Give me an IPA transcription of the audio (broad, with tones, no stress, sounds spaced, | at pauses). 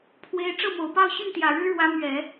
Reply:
pʰ w e˧˥ ɪ̯ ʈ͡ʂ ɤ˥˩ m o˨˩ ʊ̯ p ɑ˥˧ ʊ̯ ɕ y˥˩ n t̪ j ä˨˩ ɻ ɻ̩˥ ɻ w ä˧˥ m ɥ ɛ˨˩˦